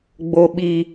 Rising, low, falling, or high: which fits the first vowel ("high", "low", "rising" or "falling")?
low